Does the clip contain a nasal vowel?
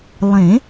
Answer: yes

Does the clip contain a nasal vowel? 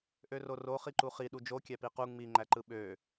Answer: no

